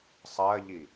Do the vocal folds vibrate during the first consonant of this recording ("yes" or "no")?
no